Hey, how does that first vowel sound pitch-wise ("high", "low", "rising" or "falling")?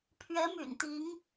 rising